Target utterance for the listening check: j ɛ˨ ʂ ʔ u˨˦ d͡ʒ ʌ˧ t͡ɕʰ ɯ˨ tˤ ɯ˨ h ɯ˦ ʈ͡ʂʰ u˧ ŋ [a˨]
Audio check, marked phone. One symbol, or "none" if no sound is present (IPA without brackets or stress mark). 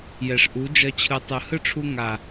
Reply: a˨